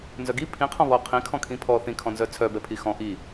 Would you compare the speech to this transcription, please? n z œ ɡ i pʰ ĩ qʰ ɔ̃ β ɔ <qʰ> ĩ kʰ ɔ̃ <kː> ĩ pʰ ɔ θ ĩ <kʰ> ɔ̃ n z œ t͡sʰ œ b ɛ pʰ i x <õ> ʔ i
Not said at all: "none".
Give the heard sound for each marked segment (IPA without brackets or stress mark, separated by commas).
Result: qʰ, kʰ, kʰ, ɔ̃